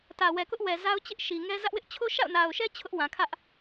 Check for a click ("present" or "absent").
absent